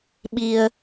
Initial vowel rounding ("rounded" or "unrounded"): unrounded